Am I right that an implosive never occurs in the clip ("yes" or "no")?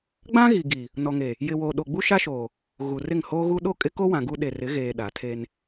no